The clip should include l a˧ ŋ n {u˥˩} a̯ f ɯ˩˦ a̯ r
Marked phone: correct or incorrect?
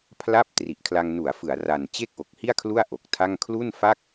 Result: incorrect